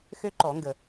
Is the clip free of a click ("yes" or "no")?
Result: no